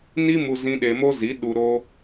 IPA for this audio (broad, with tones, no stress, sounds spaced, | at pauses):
n i˦ m u˧ z ĩ˧ ɗ e˧ m o˦ z i˨˦ ɗ u˧ ɾ o˦